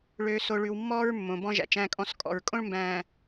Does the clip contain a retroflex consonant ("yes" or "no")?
yes